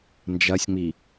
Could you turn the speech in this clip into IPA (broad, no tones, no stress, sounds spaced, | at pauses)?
n d͡ʒ ɐ sʲ ŋ͡m i